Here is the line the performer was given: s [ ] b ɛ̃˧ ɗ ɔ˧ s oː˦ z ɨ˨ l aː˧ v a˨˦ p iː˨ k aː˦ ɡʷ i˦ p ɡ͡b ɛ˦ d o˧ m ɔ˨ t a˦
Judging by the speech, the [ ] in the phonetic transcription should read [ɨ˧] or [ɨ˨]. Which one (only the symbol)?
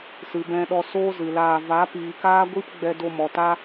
ɨ˨